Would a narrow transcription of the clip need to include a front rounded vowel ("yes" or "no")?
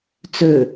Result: yes